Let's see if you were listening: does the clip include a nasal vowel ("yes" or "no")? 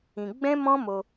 yes